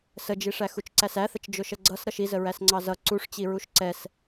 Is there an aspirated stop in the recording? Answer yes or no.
no